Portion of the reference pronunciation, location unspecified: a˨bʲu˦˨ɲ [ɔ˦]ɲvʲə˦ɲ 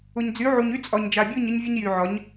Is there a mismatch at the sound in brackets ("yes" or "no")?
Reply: yes